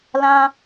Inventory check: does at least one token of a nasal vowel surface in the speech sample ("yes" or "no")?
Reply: yes